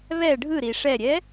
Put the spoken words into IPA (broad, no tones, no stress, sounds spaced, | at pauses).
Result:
β ɛ ɖʱ ɯ ɾ i ʂ ɛ ɾʲ ɛ